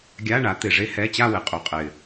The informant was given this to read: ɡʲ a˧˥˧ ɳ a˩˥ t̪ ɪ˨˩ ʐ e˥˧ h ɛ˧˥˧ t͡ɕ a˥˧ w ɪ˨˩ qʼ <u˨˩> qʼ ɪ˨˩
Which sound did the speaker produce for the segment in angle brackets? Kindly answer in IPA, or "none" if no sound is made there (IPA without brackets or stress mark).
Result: u˨˩